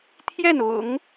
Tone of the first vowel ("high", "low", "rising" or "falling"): falling